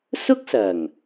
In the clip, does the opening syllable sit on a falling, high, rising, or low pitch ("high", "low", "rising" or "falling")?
high